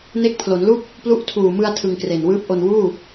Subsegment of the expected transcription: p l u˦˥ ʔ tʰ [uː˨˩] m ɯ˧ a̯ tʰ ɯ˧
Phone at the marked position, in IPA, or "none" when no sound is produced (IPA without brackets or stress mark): uː˨˩